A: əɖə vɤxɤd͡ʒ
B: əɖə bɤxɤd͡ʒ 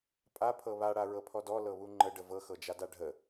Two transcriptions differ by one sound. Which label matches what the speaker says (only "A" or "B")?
A